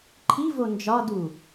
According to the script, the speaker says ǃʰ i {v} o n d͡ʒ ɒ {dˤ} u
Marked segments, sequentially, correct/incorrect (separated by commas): correct, incorrect